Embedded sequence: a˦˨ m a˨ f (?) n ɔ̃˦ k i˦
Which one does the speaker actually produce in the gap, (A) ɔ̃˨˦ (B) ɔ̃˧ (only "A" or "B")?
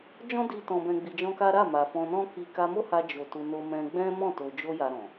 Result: B